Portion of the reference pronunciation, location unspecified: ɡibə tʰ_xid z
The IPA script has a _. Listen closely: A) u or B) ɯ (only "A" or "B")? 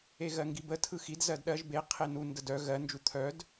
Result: B